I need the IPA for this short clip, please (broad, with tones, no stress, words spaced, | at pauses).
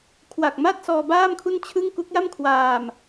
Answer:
kʰwa˨˩k̚ma˥˩t̚sɔː˧ baː˥˩mkʰu˥˩nt͡ɕʰɯ˥˩ŋ ku˦˥k̚ja˥˩mkʰwaː˧m